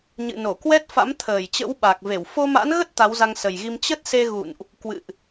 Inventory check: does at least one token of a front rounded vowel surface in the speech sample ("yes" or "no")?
no